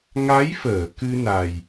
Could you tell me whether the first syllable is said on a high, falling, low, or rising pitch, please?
rising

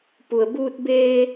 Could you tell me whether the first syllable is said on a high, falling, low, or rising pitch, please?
low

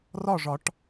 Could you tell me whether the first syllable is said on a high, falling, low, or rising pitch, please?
falling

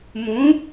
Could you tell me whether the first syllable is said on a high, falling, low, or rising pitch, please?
rising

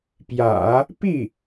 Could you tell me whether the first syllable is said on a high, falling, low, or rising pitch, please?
low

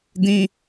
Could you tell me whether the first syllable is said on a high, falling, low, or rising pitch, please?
high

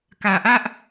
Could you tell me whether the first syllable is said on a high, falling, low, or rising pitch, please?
low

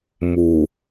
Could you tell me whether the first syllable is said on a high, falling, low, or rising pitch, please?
low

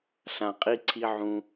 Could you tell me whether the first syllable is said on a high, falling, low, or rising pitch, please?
low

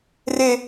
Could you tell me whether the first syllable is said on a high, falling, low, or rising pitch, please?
high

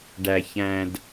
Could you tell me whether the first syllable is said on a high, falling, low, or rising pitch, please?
low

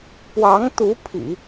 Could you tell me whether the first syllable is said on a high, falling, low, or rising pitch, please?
rising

